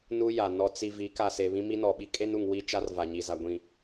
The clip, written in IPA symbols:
n u˦ j a˨ n ɔ˨ t͡s i˨ v i˨˦ k a˨ s e˨ β ĩ˦ m i˦ n ɔ˨ ɓ i˦ kʼ e˦ n u˨ ŋ w i˦ t͡ʃ a˦ r v a˨ ɲ i˨ z a˨ ɡʷ ĩ˨

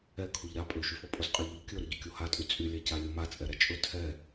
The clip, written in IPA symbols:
ɛ kʰ u ʎ ɾ a pʼ ø ʃ y f ɔ pʼ o z qʼ ɛ ʎ ɔ ʎ kʲ ɵ ɾ ɵ ɟ ɵ kʲ o h a tʼ y t͡sʼ y lʲ a c a lʲ o m a t͡sʼ ɛ ɾ ɛ t͡ʃʼ ɵ tʰ ɛ

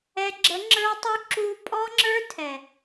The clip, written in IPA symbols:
ɛ˨ ɡ͡ǁ ə˨˦ ŋ͡ǁ ə˞˦ tˤ u˦ ǁ u˦ pʼ ɔ˦ ŋ͡ǁ ə˞˦ tʰ ɛ˨

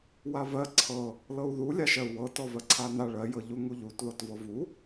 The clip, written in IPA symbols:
w a v ɜ ǀʰ ɤ | l ɤ u̯ ð u lʲ a ʃ ɜ u̯ w ɤ t ɔ v ɜ ǀʰ a n a ɭ ɜ j ɤ ʎ u ŋ u ʎ u t ð ɔ t v ɤ v u

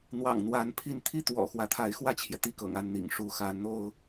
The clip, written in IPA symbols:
n̪ w ɑ̰˨˩ ŋ n̪ w a˧˥ n pʰ i˥˧ n t̪ʰ i˥˩ t̪ w ɔ̰˨˩ x w ä˧˥ t̪ʰ a˧˥ ɪ̯ x w ä˥˩ t͡ɕʰ j ɛ˩ t̪ i˥˩ k ɤ̰˨˩ ŋ a˥˩ n n̪ ḭ˨˩ ŋ ʂ u˧˥ x a˧˥ n n̪ o˥ ʊ̯

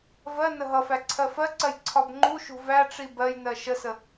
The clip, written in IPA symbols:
v ɜ n ə ɦ ʌ f æ ǀʰ ɜ f ɜ ǀ ɜ j ǀʰ ɒ b ŋ͡ǃ u ʃ ṳ v æ ʈ͡ʂ i b ɜ j n ɜ ʃ ə s ə

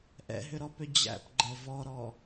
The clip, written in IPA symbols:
ʔ ɛ̰ ɦ ʏ ɾ ɔ p ʏ d͡ʑ æ̰ p ɡ͡ǃ ɛ v ɔ ɾ ɔ

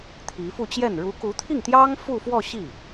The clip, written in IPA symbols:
t̪ʰ i˧˥ f u˥˧ t͡ɕ j ɛ˥˩ n ɻ u˧˥ k u˧˥ t̪ʰ i˥˩ ŋ t̪ j ɑ˥ ŋ f u˥˧ f w ɔ˥˧ ɕ i˥˩

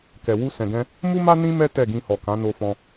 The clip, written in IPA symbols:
k ɛ˨ w u˧ s ɛ̃˨ ɡ ɛ̃˧ | m u˦ m a˦ n ĩ˦ m ɛ˦ t ɛ˦˨ ɡ ĩ˧ h ɔ˨ k ã˨˦ n o˧ f ɔ̃˧

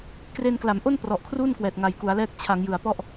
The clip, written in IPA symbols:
k r e˧ n k l a˩˦ m ʔ o˥˩ n p r ɔ˨˩ ʔ kʰ r u˥˩ n k w ɛː˨˩ t̚ ŋ a˨˩ j k u˩˦ a̯ l ɛː˦˥ k̚ t͡ɕʰ a˩˦ ŋ j ɯ˨˩ a̯ p ɔ˥˩ ʔ

